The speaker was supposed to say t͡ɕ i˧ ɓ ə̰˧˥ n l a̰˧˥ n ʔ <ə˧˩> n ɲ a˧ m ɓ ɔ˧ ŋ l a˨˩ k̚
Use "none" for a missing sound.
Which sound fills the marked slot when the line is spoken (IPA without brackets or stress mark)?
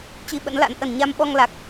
ə˧˩